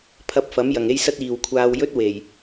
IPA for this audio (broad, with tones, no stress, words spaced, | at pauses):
pʰɐ˧p̚fɐ˨˥m jɐ˨ŋe˥jsɐ˥t̚ iː˨wkʷʰaː˧wjɵ˥t̚ we˨˩j